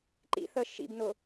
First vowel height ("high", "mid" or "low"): high